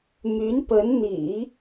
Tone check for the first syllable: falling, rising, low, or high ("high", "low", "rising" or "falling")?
rising